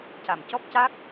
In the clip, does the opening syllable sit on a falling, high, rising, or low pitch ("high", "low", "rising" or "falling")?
low